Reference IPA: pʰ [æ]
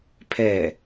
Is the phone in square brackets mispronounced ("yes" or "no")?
yes